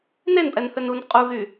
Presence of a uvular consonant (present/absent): present